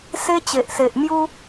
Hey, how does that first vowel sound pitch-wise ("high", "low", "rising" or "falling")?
high